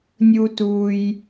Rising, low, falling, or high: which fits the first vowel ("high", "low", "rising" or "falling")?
high